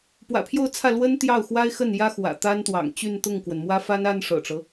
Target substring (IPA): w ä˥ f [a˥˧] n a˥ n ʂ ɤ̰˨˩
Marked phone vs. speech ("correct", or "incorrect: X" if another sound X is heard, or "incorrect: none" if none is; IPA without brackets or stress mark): incorrect: a˥